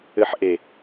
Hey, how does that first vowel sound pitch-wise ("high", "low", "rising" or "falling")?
low